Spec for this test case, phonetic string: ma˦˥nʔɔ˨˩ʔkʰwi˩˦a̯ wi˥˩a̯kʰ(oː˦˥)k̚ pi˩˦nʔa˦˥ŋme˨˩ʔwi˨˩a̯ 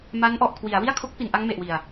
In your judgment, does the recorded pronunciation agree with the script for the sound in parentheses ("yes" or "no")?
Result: no